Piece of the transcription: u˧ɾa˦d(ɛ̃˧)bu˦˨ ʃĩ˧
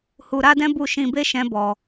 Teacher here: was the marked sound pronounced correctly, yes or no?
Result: no